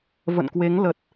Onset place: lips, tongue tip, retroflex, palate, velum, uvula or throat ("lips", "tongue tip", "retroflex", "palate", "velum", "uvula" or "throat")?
lips